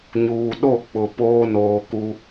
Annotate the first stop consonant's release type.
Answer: implosive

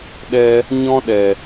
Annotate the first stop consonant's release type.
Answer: implosive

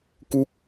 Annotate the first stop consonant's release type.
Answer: plain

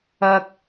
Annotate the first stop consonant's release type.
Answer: plain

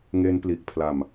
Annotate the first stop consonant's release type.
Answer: plain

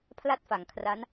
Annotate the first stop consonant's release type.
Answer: aspirated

